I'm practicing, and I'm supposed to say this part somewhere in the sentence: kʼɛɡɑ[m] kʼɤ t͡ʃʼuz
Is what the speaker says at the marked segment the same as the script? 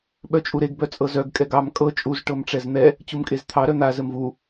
yes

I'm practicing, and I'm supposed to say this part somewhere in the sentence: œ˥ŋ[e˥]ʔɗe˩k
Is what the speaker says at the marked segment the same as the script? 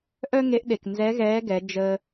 no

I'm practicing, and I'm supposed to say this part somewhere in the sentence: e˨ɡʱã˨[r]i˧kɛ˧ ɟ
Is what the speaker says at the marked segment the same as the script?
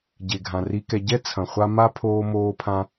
yes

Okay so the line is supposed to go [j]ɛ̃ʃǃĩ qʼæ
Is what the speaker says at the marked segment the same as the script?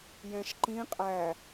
yes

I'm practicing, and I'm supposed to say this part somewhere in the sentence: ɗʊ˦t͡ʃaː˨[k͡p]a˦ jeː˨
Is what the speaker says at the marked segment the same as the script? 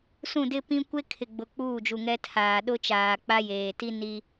yes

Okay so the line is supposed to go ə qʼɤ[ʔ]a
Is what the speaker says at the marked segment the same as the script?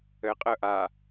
yes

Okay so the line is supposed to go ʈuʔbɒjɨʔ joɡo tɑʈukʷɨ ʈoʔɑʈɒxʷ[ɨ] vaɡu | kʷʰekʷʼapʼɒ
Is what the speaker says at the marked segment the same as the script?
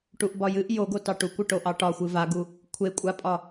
yes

